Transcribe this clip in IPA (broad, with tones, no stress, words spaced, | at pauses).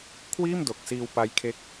kʰwiː˥˩mdo˨˩k̚siː˧w pa˦˥jkʰe˦˥k̚